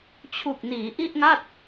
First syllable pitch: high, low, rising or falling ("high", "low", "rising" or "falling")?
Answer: low